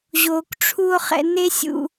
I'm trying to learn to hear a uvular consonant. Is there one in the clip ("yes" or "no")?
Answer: yes